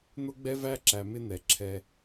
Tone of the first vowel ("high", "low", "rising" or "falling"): high